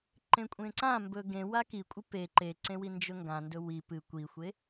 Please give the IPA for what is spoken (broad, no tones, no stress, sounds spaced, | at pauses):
ǃ ẽ kʷʼ ẽ ǀ ã m b ɵ ɡ ẽ w a k i kʷʼ ɨ p e ǃ e ǀ ẽ w i n d͡ʒ ɵ ŋ ɡ ã n d ɵ w i p ɨ kʷ i xʷ e